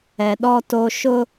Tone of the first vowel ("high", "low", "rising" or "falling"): low